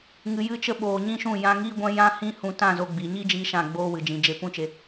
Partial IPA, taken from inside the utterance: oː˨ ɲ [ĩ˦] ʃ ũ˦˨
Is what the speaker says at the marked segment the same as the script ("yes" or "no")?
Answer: yes